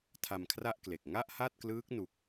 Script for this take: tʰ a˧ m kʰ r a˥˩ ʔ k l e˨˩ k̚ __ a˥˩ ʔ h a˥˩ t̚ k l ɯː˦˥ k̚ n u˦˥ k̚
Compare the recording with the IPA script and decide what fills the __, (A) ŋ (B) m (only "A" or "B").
A